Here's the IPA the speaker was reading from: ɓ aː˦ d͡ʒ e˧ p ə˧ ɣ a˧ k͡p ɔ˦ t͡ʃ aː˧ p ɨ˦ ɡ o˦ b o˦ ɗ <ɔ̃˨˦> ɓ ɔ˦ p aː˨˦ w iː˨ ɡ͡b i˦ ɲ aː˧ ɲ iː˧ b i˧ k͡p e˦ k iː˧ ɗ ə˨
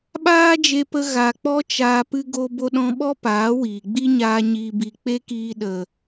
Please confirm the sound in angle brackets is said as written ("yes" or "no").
no